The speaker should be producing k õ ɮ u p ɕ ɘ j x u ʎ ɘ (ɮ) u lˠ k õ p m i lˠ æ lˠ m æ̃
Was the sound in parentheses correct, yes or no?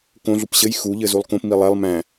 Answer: no